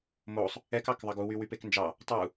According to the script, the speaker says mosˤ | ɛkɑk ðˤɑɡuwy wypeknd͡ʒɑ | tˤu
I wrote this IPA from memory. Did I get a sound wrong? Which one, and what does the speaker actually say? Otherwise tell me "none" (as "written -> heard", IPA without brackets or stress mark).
none